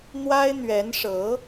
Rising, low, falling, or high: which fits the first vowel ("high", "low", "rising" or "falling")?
high